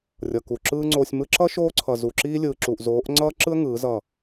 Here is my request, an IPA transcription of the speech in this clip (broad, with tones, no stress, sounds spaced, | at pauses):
rʲ ʌ˨ k u˨ ǁ ɯː˦ ŋ͡ǀ oː˧ sʲ m ɯ˧ ǁ ʌ˦ ʃ oː˦ ǀʰ ʌ˨ z u˨ ǁ iː˦ lʲ ɯː˨ ǁ uː˨ ʔ z oː˨˦ ʔ ŋ͡ǀ ʌː˦ ǁ ɯ˦ ə̯ ŋ ɯː˨˦ z ʌ˦˨